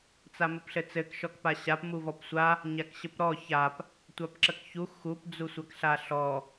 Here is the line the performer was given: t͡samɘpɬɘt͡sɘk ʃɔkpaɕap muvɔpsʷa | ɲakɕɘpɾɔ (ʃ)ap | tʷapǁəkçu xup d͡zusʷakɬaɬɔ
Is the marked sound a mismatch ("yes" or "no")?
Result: yes